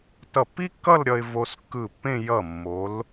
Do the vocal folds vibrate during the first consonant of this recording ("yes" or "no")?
no